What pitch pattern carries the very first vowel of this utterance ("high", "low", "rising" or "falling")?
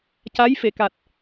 rising